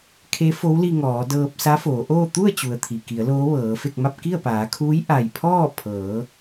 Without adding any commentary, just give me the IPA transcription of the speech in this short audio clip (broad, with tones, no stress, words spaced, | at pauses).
kʰe˧˥fo˧˥wli˧ ŋɔː˩˧dɤː˧p̚ sa˧˥foː˩˧ʔoː˥˨ t̪u˥˨ə̯t͡ɕu˩ə̯ t̪ʰi˩ki˩˧ə̯ loː˧˥ʋɤː˩˧fe˥˨k̚ma˥˨p̚ ki˥˨ə̯paː˩˧kʰuː˧˥j ʔa˧˩jpʰɔː˥˨ pʰɤː˩˧